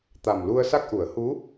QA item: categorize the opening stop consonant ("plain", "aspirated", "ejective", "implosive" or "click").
plain